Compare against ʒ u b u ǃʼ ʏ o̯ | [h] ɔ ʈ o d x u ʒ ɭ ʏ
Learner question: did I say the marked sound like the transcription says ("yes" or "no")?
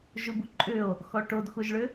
no